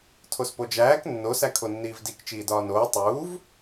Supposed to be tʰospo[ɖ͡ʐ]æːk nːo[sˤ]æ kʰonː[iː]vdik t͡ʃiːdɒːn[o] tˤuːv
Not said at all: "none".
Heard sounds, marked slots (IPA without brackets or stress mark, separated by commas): d͡ʒ, s, iː, oː